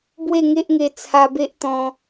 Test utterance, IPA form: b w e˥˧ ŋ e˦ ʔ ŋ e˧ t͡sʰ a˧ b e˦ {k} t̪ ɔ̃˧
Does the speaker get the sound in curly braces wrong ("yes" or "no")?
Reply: yes